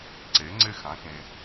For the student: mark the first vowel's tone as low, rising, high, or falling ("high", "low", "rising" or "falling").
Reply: rising